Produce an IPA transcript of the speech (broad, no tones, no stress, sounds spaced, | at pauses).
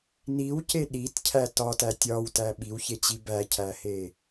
n i w c e ɗ i t cʰ æ t ɒ t æ tʲ ɒ w t æ ɓ i w ç e t͡ɕ i b æ cʰ æ h e